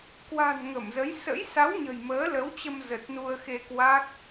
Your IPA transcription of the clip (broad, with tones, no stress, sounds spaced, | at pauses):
k w a̤˨˩ n ŋ ə˧˩ m z ə˨˦ j s ə̰˧˥ j s a˨˦ w ɲ ə̤˨˩ j m əː˨˦ l ə˨˦ w t͡ɕ ə˧ m z ə˨˩ t̚ n u˧ ə̯ x e˧ k w a˦˥ k̚